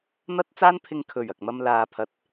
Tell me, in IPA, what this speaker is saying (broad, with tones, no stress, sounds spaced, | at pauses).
n̪ ɐ˥ t̚ t͡s aː˥ n pʰ ɪ˧ ŋ kʰ ɵ˨˩ ɥ ɐ˨ k̚ m ɐ˧ m l aː˨ pʰ ɐ˨˥ t̚